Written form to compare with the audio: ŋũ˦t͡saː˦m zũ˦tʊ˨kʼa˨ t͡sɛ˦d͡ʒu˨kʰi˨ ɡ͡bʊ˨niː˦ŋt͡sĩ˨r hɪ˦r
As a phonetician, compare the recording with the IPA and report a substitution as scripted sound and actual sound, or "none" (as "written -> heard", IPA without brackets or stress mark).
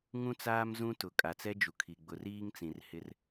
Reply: n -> r